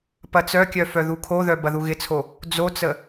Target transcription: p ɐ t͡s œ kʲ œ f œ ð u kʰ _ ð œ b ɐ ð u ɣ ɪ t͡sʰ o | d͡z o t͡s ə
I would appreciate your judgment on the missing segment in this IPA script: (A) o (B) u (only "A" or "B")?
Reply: A